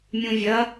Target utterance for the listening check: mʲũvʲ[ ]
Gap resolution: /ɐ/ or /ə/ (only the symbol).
ɐ